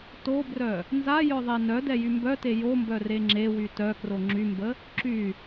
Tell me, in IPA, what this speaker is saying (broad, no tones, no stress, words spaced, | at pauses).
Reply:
tobrœ | nza jœðˤenœdɛ jymbœte jombœ reŋ͡ǁewy tœkro ŋ͡ǁymbə | ǁy